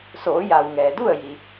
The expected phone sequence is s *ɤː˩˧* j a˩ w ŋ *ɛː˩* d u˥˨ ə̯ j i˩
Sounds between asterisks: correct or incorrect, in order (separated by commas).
incorrect, correct